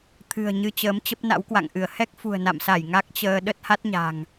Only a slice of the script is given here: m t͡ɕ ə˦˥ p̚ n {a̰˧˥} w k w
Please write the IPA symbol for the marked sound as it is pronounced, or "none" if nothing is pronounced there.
a̰˧˥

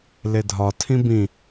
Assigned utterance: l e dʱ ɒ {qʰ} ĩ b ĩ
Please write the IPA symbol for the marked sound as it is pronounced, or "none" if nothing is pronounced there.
tʰ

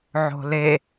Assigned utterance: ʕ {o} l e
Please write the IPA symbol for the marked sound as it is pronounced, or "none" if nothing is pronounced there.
o̤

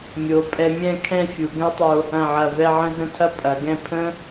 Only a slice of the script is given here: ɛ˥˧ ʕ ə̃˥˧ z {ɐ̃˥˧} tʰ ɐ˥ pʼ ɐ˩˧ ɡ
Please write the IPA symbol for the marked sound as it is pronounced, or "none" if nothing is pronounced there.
ə̃˥˧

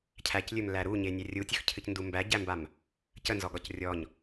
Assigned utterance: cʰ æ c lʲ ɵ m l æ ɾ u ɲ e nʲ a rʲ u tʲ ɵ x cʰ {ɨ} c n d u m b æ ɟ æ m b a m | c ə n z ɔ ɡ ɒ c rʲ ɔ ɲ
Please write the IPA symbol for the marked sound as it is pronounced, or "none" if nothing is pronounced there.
ɨ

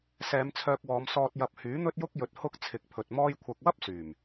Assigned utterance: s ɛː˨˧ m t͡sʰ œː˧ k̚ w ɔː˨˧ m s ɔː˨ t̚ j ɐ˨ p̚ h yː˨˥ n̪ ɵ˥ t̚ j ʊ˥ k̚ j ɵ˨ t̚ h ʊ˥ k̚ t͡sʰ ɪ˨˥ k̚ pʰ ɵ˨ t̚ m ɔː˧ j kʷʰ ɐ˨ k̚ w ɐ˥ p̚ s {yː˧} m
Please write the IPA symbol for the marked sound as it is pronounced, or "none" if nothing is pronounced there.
yː˨˩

